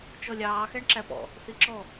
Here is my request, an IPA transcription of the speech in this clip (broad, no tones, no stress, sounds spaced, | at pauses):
t͡ʃ ɔ lʲ ɑː x æ ɳ ǁ æ p ɔ̰ | θ i ǁ ɔ